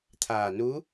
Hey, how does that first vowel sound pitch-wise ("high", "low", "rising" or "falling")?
low